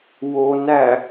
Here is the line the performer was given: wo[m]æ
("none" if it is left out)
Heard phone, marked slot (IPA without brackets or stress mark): n